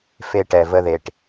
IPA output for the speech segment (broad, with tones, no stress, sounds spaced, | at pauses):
f e˧ ʈ ɛ˩ v ə˧ ð e˩ ʈ